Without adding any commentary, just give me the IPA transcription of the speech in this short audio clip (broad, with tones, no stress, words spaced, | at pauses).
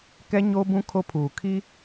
kɛ˦ ɲoː˦bũ˦ kʰo˦pʰuː˨kʰi˦